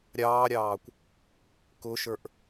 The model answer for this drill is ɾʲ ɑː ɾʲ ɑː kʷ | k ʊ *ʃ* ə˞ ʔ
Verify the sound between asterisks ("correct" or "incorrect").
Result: correct